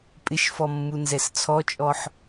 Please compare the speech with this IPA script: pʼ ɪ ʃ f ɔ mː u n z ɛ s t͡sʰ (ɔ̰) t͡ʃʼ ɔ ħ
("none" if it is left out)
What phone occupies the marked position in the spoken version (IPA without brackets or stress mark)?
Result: ɔ